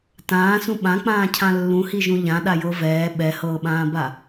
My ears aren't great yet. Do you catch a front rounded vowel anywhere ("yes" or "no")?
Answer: no